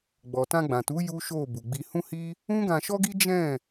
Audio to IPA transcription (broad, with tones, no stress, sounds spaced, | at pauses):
ɡ͡b ɔ˨ t ã˧ ɡ͡b ã˨ t u˨˦ j u˦ ʃ o˦˨ b u˨ ɡ͡b i˧ h ũ˦ h i˦ | ũ˦ ɡ ã˧ ʃ ɔ˦ ɡ i˦ d͡ʒ ɛ̃˦˨